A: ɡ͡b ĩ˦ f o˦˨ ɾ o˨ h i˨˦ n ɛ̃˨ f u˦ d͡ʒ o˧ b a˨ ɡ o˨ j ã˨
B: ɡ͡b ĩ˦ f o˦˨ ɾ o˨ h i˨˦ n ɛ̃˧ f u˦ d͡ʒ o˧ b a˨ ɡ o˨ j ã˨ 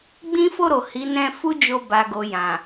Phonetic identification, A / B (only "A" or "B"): B